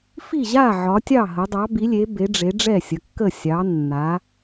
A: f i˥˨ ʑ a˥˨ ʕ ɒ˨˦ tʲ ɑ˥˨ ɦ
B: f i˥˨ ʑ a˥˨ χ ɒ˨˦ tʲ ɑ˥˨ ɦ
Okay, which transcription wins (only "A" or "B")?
A